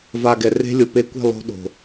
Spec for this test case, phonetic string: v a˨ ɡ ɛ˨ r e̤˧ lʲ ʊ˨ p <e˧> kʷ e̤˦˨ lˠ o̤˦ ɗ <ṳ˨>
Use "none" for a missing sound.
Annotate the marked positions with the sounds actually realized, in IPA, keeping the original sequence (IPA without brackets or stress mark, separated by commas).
e˧, o̤˨